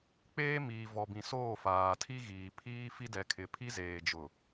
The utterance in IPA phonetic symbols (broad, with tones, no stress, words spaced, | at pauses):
k͡peː˦miː˨ vɔ˨bĩ˨soː˦˨ faː˨tʰi˦ɣiː˨ pʰiː˦ fi˦dɛ˨kʰɪ˨ pʰi˦zeː˨d͡ʒʊ˨